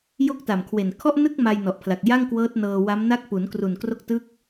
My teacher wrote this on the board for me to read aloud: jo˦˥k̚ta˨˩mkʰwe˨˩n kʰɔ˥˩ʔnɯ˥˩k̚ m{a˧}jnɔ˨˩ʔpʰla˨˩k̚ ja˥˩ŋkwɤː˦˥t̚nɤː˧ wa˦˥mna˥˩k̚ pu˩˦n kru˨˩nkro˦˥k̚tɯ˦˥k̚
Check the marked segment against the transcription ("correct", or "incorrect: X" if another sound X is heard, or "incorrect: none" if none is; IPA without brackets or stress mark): correct